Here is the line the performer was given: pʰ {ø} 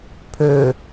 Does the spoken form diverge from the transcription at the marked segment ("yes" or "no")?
no